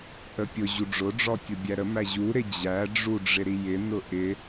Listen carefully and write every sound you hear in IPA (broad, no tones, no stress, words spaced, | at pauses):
ʔəpʲʊ ʑuɖ͡ʐʊɖ͡ʐɔtʲʊ bʲæɾəmæ ʑuɾɪ d͡ʑæɖ͡ʐu ɖ͡ʐɪɾijɪ nʊʔɪ